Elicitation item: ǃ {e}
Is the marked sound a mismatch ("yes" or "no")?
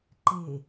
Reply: no